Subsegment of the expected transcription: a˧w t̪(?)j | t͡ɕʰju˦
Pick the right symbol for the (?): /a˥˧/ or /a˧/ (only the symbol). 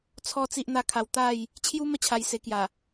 a˥˧